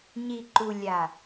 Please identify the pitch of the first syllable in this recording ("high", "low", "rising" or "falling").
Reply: low